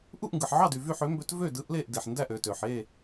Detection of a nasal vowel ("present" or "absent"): absent